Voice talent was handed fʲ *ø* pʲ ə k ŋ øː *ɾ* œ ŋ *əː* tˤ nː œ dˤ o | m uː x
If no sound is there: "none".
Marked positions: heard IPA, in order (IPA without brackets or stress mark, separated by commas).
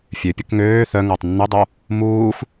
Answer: ø, θ, əː